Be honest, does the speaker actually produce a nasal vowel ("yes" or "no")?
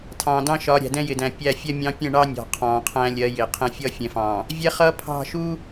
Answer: yes